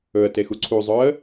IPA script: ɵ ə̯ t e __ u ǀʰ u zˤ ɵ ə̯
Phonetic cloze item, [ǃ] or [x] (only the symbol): x